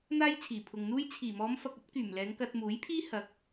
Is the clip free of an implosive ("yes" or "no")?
yes